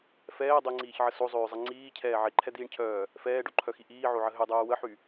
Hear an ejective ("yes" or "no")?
no